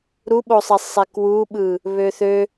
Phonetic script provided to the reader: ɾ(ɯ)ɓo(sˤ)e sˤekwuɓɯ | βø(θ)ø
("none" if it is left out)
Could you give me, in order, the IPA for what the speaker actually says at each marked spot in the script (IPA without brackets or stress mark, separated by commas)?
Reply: u, sˤ, θ